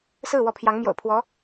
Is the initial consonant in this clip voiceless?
yes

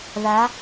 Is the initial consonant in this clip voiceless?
no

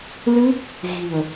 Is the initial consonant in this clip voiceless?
no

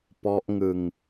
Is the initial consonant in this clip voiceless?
yes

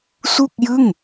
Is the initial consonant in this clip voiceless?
yes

